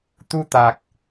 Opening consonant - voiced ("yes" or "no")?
no